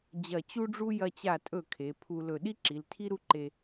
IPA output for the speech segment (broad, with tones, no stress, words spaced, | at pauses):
d͡ʑɐ˧˩ t͡ɕu˥ɖ͡ʐu˥ jɐ˧t͡ɕa˧˩tʼɵ˧˩ kʰe˩˧pʰu˧lɵ˧˩ ɗi˥ǁi˩˧ltʰi˥ ɾu˥˧ǃe˧